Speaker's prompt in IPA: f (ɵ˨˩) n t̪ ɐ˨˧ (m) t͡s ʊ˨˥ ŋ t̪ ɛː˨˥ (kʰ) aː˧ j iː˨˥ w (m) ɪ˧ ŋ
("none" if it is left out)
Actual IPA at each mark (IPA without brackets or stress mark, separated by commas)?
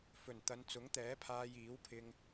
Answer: ɵ˨˩, n, pʰ, pʰ